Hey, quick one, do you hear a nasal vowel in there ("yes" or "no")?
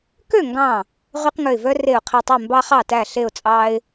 yes